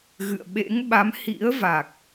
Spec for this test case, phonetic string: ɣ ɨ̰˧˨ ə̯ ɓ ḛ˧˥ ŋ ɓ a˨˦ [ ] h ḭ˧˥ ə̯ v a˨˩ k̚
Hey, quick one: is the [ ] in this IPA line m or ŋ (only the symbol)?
m